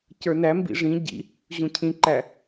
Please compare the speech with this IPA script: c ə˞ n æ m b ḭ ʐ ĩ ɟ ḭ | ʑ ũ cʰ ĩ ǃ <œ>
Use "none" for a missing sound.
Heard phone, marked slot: æ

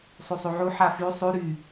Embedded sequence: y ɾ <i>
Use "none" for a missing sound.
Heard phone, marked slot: y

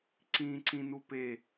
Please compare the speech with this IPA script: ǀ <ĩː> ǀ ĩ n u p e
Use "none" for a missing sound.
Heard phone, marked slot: ĩː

